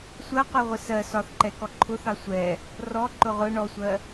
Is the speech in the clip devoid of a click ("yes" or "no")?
no